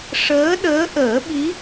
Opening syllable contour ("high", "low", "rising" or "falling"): rising